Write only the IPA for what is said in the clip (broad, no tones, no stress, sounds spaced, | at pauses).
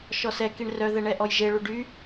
ʃ ɔ s ɛ k i ɳ r œ ð ɛ ɳ ɛ ʔ ɔ j ʒ e ɭ u ɖ y